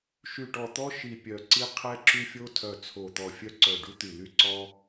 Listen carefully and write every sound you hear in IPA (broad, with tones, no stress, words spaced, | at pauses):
ʃy˨˩ʈɔ˨˩t̪ɔ˧ ʃi˨˩pʲœ˨˩ǀi˧ qʰɛ˧ǁy˧fʲo˧ tʰœ˨˩t͡sʰo˨˩t̪ɔ˨˩ fʲœ˧ǀœ˨˩ɖu˧t̪y˨˩ ly˧ǀɔ˧